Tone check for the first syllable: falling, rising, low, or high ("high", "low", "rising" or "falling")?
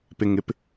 low